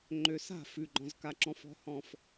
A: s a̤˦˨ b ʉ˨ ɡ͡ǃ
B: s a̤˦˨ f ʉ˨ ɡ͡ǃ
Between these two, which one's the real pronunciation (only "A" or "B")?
B